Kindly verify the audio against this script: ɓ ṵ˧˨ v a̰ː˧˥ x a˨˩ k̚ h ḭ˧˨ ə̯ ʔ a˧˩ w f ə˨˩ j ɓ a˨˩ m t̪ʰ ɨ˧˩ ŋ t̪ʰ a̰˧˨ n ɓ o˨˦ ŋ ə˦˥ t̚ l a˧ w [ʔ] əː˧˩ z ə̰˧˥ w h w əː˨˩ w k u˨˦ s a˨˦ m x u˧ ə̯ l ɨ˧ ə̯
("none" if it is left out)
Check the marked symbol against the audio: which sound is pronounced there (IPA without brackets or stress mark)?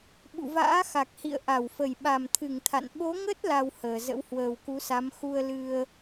h